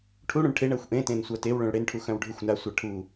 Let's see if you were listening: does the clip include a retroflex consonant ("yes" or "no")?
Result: yes